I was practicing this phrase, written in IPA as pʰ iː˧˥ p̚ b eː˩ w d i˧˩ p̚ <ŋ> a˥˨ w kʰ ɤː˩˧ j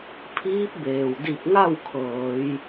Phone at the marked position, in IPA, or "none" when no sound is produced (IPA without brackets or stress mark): ŋ